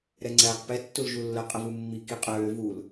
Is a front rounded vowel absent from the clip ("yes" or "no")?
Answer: no